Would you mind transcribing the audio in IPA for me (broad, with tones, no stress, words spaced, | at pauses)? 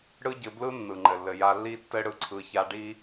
ɽɯ˦ɟɘ˧blɯ˦ nːɯ˨ŋ͡ǃɘ˨lːɘ˨ ja˧lːi˦tːɘ˦ ɽɯ˧ǀʰɯ˧ça˦ ɖi˦